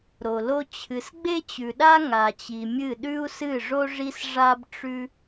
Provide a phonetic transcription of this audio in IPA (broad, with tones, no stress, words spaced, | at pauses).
ɾo˨lo˧ t͡ɕʰɨ˨sɡ͡be˦t͡ɕʉ˨ɗa˦ ŋa˨t͡ɕi˨mʲɨ˦˨ ɗʉ˦u̯sɨ˦˨ʐo˦ ʐi˧s ʐa˦bʈ͡ʂʉ˦